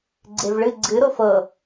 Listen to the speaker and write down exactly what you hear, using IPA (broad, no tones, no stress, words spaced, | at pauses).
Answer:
ɡ͡ǀevɭɨ ɡ͡ǀɨ ɾofɤ